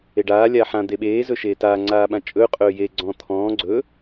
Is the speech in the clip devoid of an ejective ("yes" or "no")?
no